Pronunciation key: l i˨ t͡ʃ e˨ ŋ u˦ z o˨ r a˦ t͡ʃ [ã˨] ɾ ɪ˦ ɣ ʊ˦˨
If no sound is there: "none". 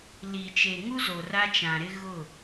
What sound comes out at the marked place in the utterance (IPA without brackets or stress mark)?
ã˨